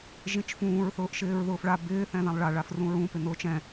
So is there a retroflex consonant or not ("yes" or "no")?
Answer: yes